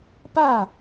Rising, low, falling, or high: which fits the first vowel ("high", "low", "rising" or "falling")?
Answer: falling